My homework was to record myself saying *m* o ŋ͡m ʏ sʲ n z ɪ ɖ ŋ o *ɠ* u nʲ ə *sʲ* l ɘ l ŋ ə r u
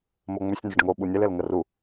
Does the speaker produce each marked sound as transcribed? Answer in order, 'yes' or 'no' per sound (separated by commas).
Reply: yes, no, no